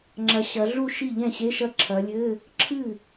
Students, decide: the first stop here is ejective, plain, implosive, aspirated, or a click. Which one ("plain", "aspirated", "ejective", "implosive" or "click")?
click